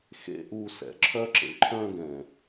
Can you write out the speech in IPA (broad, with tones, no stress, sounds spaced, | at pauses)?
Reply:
x ḛ˨ ʔ u˨ s ɛ̰˨ ǁʰ œ˦ ǁ ḛ˨ ǃʰ œ̃˦ ɡ ɛ̃˨